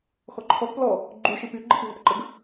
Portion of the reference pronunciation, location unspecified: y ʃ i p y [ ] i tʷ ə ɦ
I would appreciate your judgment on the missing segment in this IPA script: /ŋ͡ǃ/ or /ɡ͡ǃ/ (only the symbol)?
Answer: ɡ͡ǃ